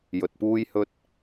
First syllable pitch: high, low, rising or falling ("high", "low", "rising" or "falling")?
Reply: low